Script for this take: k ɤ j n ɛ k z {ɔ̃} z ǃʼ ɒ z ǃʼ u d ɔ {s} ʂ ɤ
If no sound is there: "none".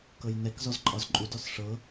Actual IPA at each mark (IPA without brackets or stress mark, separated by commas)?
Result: ɔ, s